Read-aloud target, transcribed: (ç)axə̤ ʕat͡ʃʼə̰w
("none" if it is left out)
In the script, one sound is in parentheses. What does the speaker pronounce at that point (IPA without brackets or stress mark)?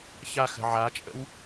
ç